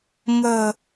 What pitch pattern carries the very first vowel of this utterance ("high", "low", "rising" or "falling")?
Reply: low